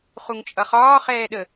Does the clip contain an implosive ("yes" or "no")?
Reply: yes